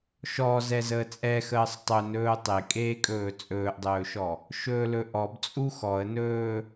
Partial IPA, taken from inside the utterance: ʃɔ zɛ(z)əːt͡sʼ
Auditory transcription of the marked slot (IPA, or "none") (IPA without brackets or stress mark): z